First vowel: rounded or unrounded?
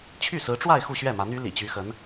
rounded